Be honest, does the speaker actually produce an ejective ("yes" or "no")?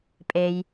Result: yes